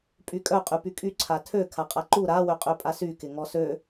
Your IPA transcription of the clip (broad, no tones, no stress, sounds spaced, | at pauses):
pʼ y kʼ œ qʼ y p y kʼ y ǀʰ a tʰ ø kʰ a qʼ a ǃ u ɾ a w ø qʼ ø pʼ a s y k ɪ ŋ ɔ s ø